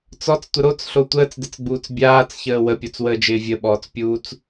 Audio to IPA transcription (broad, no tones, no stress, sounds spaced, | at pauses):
t͡s ɔ t͡s tʷ ə ɾ o t͡s ɬ o tʷ əː t͡s d ɪ t͡s ɡ͡b uː t͡s bʲ aː t͡s ç əː w ə pʲ ɔ t͡s w əː d͡ʒ ɪː vʲ ə ɓ ɔː t͡s pʲ uː t͡s